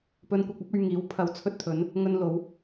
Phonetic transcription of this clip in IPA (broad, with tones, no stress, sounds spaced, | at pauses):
p ɵ˧ n kʷ ɐ˧ k̚ ɐ˥ p̚ ɵ˧ ɥ ŋ iː˨˥ w pʰ ɐ˧ w t͡sʰ ɵ˧ t̚ t̪ʰ ɵ˨˧ n | ŋ ɵ˧ n l o˨˧ w